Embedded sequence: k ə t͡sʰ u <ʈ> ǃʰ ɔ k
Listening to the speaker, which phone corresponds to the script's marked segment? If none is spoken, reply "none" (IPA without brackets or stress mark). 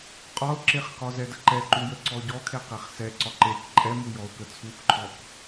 k